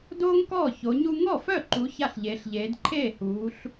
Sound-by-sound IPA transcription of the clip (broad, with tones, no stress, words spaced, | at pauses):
doː˥ŋkɔː˥˩ ço˨˦ɲu˥ ŋɔ˥˩fœ˥˩ǃu˨˦ ça˥˩ɬʎeː˨˦ɬʎeː˨˦d ǃʰeː˥˩huː˨˦ɬ